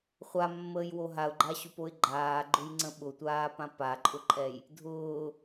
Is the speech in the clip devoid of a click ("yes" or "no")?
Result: no